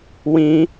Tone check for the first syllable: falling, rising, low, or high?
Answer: high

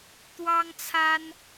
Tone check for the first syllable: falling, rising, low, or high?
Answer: high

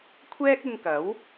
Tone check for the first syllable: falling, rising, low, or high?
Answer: high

